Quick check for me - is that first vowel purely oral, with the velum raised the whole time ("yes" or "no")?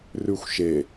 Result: yes